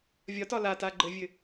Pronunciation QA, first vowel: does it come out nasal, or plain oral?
oral